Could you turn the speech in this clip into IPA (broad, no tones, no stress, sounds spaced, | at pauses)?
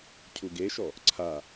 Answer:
cʰ u ɡ e ʃ ɔ | ǀʰ a